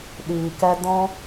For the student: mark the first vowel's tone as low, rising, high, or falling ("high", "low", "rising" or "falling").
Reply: low